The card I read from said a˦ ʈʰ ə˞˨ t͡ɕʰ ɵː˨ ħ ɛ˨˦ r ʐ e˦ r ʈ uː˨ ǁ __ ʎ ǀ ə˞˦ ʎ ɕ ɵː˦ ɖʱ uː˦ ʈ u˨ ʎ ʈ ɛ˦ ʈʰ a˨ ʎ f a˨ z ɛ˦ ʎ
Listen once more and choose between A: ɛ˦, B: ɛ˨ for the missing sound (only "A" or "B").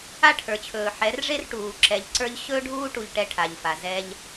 B